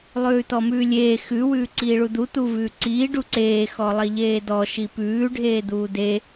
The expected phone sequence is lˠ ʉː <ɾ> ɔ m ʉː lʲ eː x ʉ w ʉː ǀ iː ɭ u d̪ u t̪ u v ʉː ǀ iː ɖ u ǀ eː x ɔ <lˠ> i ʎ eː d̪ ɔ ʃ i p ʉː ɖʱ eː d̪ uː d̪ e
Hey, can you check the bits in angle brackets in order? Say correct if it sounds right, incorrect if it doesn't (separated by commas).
incorrect, correct